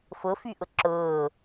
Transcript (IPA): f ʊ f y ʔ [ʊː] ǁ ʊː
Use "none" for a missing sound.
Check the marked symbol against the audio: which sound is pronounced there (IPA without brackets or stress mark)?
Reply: ʊ